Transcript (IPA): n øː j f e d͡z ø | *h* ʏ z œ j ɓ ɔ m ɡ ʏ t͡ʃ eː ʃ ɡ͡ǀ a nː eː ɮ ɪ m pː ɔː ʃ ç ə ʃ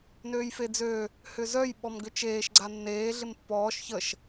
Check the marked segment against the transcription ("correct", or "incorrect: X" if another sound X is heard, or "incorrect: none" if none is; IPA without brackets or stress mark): correct